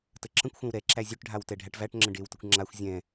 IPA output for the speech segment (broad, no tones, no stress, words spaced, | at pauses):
təǁə̃kʷxʷɛ̃w ɾɛ ǁæzʲøʈɖʱaw tɛɖʱæʈvæʈŋ͡ǁə̃ ɖewtəkʷ ŋ͡ǁaxʷ zʲɛ̃